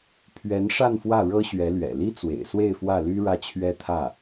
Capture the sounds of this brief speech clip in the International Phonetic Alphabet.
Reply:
pʰ ɥ ɛ˧˥ n ʂ a˥˧ n f w ä˥˩ ɻ ɤ˥ ɕ ɥ ɛ˧˥ l ɥ ɛ̰˨˩ l i˥ t͡s w ḛ˨˩ ɪ̯ s w e˥˧ ɪ̯ f w ä˥˩ l y˥ ɻ ä˥˩ t͡ɕʰ ɥ ɛ˥ t̪ʰ ä˥˩

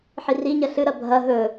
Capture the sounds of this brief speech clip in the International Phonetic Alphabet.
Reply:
ħ i r i ɲ ɐ ɬ ɨ ɾ ɐ bʱ ɐ ɦ ɵ

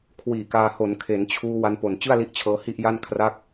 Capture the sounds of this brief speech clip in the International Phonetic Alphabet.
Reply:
kʰ w iː˨˩ k aː˧ h o˩˦ n kʰ e˩˦ n t͡ɕʰ uː˧ w a˧ n p o˨˩ n t͡ɕ ɯ˥˩ a̯ l i˦˥ ʔ t͡ɕʰ ɤː˧ h i˥˩ ʔ j a˥˩ n kʰ r a˥˩ k̚

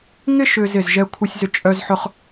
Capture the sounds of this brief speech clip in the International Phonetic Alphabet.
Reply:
ŋ ɪ˥ ʃ ʏ˧ z ɪ˧˩ z ʒ ɛ˧ kʷʰ ɪ˧ sʲ z ʏ˧ t͡ʃʼ œ˧ z ħ ʊ˧ χ

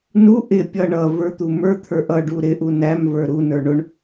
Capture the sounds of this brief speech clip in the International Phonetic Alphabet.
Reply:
n u ʔ ɪ pʲ ʌ ɳ ʌ v ə˞ t̪ u m ə˞ t̪ʰ ə˞ ʔ ʌ ɖ u ɾ ɪ ʔ u n æ m v ə˞ ɾ u n ə˞ ɳ ʊ ɳ

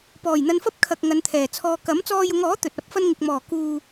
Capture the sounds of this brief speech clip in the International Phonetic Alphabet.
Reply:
p ɔː˨˩ j n̪ ɐ˧ n f ɐ˥ p̚ kʰ ɐ˨ k̚ ŋ ɐ˨˧ n t̪ʰ ɛː˨˩ t͡sʰ ɔː˧ k ɐ˨˥ m t͡s ɔː˧ j ʊ˨˧ ŋ ɔː˨˥ t̪ ɵ˨ t̚ ɐ˨˥ p̚ f ɐ˥ n ŋ ɪ˨ k̚ m ɔː˨˩ k uː˨

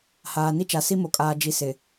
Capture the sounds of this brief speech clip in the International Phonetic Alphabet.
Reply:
h aː˨ n i˦ t͡ʃ a˨ s i˦ m o˨ kʼ aː˨ d͡ʒ i˨ s ɪ˨

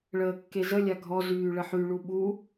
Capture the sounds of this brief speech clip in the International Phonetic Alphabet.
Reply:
ɭ əː kː e z ə lʲ a ɡʱ ɔ z yː ɭ ə ħ y ɭ u ɓ u

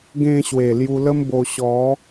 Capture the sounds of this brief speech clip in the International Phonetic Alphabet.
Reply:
ɡ ẽ˧ ɕ w e˨˩ l j u˧ l ə˦ m b o˧ ɕ ɔ˨˦

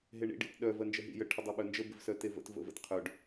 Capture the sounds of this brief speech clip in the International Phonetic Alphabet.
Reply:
ɦ e ɳ ḭ ɖ ḭ t ɗ œ v ɜ n d͡ʒ ə ɦ ḭ j ə ʈʰ ə dˤ e ɓ œ n d͡ʒ ə b ɪ v s œ t e v ə̰ t v ə̰ v ə̰ t qʰ œ ɖ

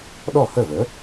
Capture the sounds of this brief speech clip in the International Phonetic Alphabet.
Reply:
ɗ ɔ˥˩ h ə˥˩ v ə˩˥

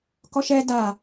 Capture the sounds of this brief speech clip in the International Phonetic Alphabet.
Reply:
k ɔ ʃ ɛ d a

